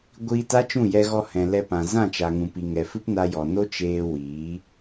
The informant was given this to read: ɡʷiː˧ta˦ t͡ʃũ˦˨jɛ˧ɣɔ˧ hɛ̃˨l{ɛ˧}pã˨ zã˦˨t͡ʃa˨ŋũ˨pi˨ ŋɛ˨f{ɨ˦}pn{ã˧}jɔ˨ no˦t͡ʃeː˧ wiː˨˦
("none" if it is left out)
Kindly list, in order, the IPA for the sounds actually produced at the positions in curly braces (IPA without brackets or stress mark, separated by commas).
ɛ˧, ɨ˦, a˧